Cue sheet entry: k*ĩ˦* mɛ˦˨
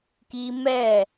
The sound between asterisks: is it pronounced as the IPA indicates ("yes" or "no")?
no